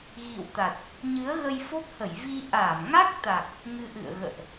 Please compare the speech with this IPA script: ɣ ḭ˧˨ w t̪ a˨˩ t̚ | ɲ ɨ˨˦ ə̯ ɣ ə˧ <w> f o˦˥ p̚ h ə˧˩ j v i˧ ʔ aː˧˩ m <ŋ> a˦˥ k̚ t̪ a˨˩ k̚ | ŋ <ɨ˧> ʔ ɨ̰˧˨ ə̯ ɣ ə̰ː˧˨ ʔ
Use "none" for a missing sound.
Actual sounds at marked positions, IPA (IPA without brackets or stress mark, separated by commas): j, ŋ, ɨ˧